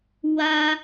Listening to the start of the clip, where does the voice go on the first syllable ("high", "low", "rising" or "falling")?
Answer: high